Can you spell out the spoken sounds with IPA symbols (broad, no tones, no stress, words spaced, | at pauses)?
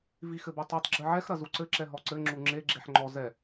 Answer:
vixɘbotˤutˤ ɡ͡ǁɨʕɛx ɾɐzuǀɘǁɛ ɦɔǀɘ ŋ͡ǁuŋ͡ǁe ɡ͡ǁeħŋ͡ǃɔ zɛ